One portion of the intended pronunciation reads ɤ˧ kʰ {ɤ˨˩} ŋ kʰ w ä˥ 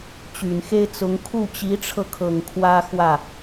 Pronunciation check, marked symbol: correct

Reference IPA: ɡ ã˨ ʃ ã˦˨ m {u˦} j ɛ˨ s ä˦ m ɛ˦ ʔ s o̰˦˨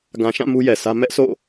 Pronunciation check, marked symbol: correct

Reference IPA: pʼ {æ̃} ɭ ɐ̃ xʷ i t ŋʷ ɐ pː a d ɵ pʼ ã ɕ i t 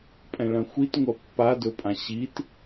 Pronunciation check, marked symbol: incorrect: ɛ̃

